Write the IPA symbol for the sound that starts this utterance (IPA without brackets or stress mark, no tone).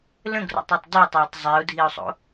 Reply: l